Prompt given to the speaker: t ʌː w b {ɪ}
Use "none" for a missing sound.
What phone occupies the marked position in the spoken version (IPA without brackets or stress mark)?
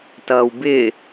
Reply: ɪ